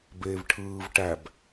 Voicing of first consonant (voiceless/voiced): voiced